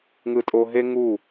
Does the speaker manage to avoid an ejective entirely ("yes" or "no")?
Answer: no